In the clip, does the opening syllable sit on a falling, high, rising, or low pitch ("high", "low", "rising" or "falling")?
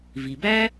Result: low